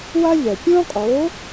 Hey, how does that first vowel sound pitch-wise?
high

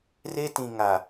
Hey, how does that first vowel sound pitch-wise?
high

